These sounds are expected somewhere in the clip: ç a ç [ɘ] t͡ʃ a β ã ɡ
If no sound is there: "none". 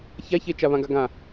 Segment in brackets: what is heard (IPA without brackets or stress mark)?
e